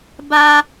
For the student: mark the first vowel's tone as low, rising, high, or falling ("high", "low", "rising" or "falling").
high